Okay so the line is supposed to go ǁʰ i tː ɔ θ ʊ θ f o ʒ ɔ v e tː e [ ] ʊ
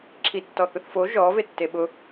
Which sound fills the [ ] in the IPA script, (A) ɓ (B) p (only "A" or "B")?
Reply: A